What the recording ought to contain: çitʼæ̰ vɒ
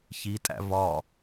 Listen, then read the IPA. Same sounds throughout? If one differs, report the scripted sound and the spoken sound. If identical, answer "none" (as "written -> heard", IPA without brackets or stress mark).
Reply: none